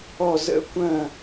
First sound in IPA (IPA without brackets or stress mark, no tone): ɔ